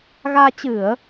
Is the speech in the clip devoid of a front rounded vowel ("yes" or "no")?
yes